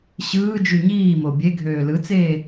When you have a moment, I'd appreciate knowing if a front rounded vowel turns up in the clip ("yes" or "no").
yes